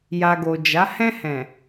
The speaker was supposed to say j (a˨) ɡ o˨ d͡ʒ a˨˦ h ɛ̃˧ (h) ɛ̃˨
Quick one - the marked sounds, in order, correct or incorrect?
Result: correct, correct

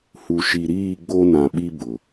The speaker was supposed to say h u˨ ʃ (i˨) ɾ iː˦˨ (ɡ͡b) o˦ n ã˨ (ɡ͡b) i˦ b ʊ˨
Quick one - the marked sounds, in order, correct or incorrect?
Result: correct, correct, incorrect: ɓ

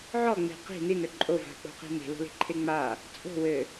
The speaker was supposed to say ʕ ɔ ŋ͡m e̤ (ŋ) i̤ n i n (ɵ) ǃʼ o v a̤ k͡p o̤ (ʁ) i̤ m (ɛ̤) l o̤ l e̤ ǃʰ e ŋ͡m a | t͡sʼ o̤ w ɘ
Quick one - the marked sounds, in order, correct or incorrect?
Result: incorrect: q, correct, incorrect: q, incorrect: e̤

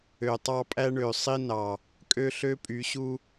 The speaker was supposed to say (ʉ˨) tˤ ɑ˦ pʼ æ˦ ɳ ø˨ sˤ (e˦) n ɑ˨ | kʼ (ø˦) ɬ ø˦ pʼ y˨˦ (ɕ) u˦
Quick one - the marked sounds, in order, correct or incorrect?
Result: incorrect: ø˨, incorrect: i˦, correct, correct

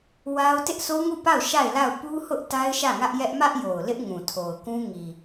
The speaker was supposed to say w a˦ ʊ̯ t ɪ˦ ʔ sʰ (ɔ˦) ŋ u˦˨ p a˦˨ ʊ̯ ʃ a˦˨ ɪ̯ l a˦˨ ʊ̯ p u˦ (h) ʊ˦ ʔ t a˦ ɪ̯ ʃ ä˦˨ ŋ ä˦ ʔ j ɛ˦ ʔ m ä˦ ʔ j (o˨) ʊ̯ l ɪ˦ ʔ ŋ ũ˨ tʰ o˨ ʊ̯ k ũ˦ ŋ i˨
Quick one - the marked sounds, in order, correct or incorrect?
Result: incorrect: o˦, correct, correct

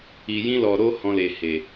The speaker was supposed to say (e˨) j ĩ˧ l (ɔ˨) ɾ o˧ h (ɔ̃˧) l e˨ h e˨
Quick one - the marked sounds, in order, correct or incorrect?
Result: incorrect: i˨, correct, correct

